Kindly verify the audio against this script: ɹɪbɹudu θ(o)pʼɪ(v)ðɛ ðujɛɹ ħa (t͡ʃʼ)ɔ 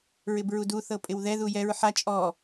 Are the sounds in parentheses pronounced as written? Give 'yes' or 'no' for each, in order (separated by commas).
no, no, yes